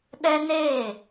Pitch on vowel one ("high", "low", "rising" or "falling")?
high